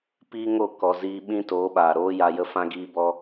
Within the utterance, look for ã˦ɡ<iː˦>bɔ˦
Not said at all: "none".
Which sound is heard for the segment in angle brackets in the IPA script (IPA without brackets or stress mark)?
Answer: iː˦